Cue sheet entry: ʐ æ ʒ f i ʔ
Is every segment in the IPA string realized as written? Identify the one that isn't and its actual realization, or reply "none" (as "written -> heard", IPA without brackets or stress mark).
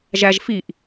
ʐ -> ʒ